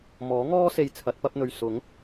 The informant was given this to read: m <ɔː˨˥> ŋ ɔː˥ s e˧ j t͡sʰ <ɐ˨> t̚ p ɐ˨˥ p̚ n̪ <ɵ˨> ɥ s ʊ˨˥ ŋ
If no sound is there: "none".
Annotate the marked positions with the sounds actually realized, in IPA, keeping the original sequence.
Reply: ɔː˨˥, ɐ˨˥, ɵ˨

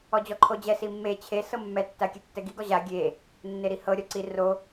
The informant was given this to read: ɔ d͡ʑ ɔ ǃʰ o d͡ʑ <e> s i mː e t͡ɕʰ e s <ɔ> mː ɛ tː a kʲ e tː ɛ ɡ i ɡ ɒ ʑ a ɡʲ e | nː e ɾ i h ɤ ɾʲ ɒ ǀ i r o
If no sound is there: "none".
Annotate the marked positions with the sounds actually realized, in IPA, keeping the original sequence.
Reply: ɛ, ɤ

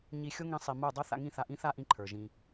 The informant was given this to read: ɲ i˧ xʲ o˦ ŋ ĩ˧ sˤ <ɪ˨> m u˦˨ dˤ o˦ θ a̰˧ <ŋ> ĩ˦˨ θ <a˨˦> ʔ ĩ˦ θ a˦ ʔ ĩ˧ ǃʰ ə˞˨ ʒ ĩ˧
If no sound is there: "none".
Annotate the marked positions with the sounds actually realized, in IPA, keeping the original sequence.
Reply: i˨, ŋ, a˧

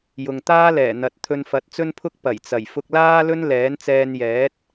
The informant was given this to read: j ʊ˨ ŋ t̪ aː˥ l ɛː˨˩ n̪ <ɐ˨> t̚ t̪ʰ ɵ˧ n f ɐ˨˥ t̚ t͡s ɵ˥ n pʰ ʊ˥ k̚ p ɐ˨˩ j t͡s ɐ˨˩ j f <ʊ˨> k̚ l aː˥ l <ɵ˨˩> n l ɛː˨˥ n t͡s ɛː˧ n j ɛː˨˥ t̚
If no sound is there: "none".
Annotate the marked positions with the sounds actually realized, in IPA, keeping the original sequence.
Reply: ɐ˨, ʊ˧, ɵ˥

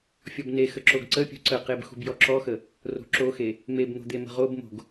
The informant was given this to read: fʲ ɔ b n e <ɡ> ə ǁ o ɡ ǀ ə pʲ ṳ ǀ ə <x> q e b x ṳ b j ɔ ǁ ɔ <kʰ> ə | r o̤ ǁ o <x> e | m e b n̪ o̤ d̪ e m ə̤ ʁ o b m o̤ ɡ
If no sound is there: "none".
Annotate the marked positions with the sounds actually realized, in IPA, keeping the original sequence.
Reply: x, none, x, x

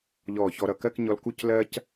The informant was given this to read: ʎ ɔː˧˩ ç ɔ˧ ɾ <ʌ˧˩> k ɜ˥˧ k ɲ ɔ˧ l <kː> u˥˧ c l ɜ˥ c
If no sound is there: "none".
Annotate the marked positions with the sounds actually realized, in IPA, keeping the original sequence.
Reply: ʌ˧˩, k

